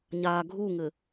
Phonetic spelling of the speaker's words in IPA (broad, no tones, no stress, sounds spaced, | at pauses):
ɲ aː ɡʱ u ŋ ɘ